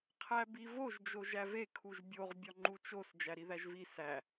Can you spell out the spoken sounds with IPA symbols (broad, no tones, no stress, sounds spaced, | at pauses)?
qʰ æ b i v o ʒ d͡ʒ o ʒ æ v e kʰ u ʒ bʲ o ʁ bʲ ɒ ŋ͡ǃ u t͡ʃ o s d͡ʒ æ ɾ i ð æ ʒ v i s æ